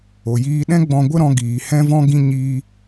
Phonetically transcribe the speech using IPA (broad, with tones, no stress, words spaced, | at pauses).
o˨jiː˧ɗɛ̃˦ ɡ͡bɔ̃˧ɡʷə˦ɾɔ̃˧ ɡiː˨ hɛ̃˦vɔ̃˦ɡĩ˦ ɲiː˦